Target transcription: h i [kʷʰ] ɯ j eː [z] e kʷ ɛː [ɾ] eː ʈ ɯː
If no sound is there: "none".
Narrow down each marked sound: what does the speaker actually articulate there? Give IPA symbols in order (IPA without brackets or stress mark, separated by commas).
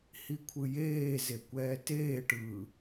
kʷʰ, z, t